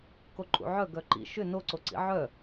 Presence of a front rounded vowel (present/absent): present